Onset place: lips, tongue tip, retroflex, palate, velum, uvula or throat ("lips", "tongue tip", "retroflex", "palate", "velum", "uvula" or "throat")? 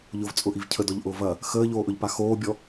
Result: palate